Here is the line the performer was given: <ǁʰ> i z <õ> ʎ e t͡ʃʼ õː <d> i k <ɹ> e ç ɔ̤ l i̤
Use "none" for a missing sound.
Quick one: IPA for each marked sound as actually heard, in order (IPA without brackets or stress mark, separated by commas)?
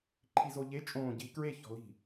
ǃʰ, o, ɟ, ɹ